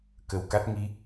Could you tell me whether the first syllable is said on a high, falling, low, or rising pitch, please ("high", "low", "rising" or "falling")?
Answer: low